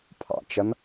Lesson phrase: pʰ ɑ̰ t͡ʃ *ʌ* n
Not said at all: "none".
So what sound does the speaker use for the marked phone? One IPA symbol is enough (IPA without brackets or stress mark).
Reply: ʌ